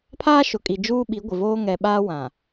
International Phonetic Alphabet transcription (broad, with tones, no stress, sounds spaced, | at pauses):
pʰ aː˦ ʃ ʊ˨ kʼ i˨ d͡ʒ uː˦ ɓ i˨˦ ɡʷ ɪ˨ v oː˦ ŋ ɛ˨ ɓ aː˦ w ã˨